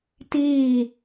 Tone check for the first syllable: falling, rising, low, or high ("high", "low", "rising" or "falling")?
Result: falling